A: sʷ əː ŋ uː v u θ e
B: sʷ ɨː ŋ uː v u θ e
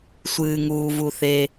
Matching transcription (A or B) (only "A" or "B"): B